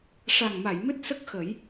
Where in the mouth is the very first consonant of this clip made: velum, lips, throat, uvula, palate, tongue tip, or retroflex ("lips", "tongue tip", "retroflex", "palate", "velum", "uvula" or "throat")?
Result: retroflex